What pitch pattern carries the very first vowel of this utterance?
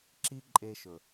high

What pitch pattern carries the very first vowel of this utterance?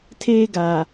high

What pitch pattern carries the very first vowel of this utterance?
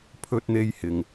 high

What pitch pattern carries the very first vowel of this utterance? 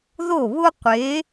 falling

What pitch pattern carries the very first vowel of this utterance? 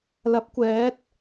rising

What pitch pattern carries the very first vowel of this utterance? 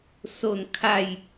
falling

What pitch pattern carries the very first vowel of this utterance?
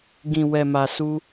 low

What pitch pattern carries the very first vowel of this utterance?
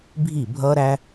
falling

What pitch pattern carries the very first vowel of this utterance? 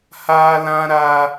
high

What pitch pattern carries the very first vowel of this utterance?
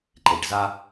low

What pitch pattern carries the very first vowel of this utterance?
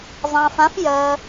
low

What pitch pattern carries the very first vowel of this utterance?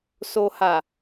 low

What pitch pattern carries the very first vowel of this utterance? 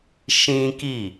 high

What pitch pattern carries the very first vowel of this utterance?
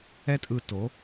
high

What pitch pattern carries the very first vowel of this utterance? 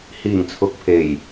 low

